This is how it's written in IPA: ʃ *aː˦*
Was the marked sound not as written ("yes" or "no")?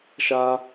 no